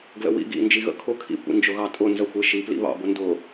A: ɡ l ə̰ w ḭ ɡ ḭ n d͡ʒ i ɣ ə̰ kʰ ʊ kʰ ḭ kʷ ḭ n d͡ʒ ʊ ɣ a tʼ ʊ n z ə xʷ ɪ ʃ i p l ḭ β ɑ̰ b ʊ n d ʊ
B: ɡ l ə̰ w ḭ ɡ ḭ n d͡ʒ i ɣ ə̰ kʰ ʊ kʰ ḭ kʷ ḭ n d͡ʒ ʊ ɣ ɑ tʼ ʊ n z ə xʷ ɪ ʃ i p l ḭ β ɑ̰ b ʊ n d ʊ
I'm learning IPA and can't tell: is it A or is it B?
B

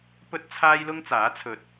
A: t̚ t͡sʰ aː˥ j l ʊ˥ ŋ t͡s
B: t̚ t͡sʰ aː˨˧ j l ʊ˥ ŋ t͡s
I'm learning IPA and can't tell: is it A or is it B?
A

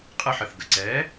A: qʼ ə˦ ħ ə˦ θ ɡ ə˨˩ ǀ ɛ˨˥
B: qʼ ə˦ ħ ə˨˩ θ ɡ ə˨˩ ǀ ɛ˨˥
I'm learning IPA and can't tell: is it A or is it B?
B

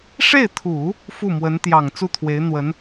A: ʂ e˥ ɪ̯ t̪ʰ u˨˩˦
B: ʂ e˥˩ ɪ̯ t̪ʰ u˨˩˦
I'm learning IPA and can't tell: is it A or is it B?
B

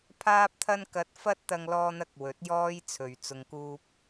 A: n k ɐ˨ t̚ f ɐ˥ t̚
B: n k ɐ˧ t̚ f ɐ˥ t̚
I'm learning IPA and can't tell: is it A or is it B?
B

